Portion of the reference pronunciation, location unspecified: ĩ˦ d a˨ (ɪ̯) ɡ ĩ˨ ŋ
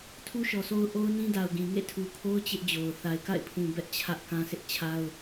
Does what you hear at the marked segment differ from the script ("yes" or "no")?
yes